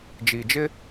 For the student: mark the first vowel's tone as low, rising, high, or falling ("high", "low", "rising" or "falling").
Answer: low